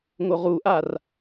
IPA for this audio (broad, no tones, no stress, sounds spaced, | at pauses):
ŋ o ʁ u ʔ a r